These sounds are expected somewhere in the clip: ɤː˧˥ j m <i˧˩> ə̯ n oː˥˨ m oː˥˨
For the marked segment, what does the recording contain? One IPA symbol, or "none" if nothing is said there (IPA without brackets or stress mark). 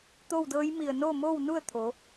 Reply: i˧˩